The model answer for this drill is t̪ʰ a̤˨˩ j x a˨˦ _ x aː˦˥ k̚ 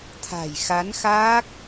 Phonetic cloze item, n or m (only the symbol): n